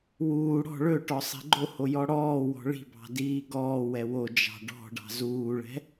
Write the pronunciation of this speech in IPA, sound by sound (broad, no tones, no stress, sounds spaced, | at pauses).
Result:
w uː ɽ ɔ̤ ɭ ɵ ʈ ɔ sˤ ɛ̤ ɡ͡ǃ o h o j ɔ ɽ ɔː w ɔ̤ ɭ i̤ b ɑ̤ d iː ɡ ɔː w ɛ w o d͡ʒ ɑ̤ ɖ ɔ̤ ɖ ɑ̤ z uː ɭ ɛ̤